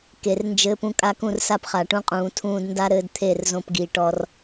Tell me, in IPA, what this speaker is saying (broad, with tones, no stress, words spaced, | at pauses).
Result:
ke˨rnd͡ʒɘː˧pũ˧ kʼa˧kũ˦˨rsa˦˨pχa˨ ʈũ˧qʼũː˨tʰũː˧d nda˦ɾɘː˧d t̪ʰe˦˨rzõ˧pɡi˨ ʈɔ˧r